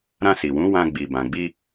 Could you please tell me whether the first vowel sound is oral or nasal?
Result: nasal